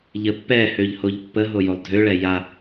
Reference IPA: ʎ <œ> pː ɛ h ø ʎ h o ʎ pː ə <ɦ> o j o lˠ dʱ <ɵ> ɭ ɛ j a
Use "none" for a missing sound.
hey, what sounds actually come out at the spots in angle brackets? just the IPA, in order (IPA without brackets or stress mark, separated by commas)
ə, ɦ, ø